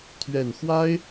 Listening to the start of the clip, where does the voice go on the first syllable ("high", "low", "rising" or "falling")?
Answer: low